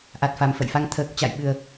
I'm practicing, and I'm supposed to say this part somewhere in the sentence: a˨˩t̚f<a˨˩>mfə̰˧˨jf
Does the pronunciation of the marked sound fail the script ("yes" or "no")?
no